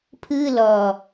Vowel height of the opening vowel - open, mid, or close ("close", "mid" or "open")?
close